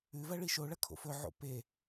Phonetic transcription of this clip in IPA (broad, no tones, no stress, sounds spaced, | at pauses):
ʉ v ɐ ɭ i ʃ o ɭ ɐ kʰ o̰ f ɵ ʕ o̰ p e